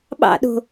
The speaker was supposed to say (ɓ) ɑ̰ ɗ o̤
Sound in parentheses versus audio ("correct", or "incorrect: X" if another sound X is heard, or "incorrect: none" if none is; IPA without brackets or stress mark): correct